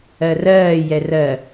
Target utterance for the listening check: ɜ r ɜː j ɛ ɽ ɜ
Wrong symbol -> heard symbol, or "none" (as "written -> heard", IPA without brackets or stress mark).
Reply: ɽ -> r